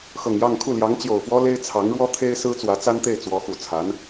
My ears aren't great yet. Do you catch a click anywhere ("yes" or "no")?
no